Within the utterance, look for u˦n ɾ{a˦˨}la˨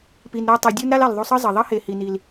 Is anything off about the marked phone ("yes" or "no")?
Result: yes